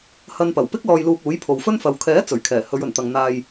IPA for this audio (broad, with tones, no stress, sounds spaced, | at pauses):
h ɐ˧ n p ɐ˨˩ w p ɪ˥ k̚ l ɔː˧ j l uː˧ k̚ uː˨˥ j pʰ o˨ w f ɵ˥ n f ɐ˨˧ w kʰ ɛː˨˥ t͡s ɵ˨˩ ɥ kʰ ɛː˨˩ h ɵ˨˧ ɥ ɵ˨˩ n t̪ ɐ˨ ŋ n̪ aː˨ j